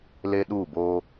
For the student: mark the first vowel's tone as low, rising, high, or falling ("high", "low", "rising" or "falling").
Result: high